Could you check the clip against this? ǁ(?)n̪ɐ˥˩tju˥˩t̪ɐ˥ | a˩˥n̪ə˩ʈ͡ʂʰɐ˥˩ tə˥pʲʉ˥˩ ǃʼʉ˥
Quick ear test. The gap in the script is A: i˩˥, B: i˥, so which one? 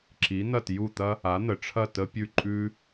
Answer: A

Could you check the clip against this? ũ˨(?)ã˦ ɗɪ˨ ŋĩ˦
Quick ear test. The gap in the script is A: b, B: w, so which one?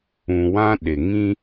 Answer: B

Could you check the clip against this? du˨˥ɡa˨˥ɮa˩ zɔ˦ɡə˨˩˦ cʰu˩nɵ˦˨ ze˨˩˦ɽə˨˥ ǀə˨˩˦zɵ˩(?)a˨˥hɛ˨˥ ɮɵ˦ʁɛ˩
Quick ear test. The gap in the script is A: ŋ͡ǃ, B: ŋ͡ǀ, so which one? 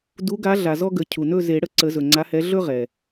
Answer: B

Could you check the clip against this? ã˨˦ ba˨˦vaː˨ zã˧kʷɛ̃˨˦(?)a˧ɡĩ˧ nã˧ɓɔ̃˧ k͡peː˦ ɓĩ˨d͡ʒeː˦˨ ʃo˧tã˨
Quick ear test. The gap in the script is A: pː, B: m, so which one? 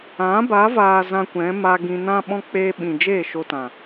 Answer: B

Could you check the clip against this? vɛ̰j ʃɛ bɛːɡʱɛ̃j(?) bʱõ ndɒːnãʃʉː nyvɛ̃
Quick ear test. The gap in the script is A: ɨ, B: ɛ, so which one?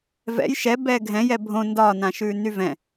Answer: B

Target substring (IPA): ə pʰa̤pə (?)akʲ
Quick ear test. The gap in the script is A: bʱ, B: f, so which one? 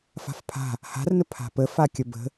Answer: B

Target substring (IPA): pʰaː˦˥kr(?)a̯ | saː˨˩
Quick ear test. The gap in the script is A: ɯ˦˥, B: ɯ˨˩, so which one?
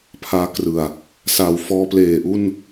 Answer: B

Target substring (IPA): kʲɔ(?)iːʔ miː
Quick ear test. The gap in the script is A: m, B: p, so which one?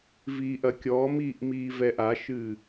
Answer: A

